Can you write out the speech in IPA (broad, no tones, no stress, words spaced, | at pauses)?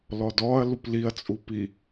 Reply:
lɔdɔɐ̯ lupliɐ̯t͡sʼu pi